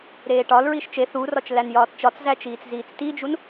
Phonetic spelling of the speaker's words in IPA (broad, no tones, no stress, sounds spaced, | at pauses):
ɾ eː ʈ ɒ l ɹ i ʃ t͡ʃ e θ u r ɒ t͡ʃ l æ n j ɒː t t͡ʃ ɒ t͡s z æ t͡ʃ iː t͡s z iː t͡s t i d͡ʒ u n